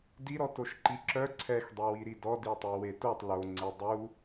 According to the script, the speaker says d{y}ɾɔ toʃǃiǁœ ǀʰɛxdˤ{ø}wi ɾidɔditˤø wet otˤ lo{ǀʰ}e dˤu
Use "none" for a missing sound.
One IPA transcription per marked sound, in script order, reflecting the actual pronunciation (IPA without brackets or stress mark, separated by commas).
i, e, ŋ͡ǀ